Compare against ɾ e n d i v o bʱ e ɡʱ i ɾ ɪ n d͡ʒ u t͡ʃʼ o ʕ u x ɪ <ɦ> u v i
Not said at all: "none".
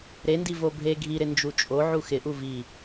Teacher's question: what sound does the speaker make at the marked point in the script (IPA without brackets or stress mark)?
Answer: ʔ